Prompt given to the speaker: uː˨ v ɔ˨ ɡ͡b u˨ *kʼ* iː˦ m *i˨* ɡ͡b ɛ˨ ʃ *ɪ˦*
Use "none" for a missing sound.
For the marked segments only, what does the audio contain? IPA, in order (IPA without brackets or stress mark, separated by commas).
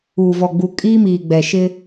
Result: kʼ, iː˨, ɪ˦